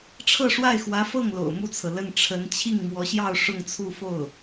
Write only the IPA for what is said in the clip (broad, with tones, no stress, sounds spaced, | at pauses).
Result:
ʈ͡ʂʰ ɤ˥˧ ʂ w a˥˩ ɪ̯ x w ä˧˥ f ɤ˥˩ ŋ l o̰˨˩ ʊ̯ m u˥˩ t͡sʰ ɤ˩ l ə˥˩ n ʈ͡ʂʰ ə˧˥ n t͡ɕʰ i˥˩ ŋ m w ɔ˧˥ ɕ j ɑ˥˧ ʊ̯ ʂ ʊ˥˧ ŋ t͡sʰ u˥˧ f o˥˩ ʊ̯